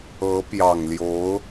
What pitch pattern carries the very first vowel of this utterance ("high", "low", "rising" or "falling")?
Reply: rising